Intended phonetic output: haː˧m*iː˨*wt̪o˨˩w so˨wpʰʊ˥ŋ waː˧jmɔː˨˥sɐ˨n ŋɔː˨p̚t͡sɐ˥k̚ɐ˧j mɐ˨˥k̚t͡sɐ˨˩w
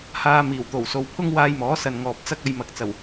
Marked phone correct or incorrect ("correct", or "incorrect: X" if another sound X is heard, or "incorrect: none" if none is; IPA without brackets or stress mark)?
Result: incorrect: iː˨˩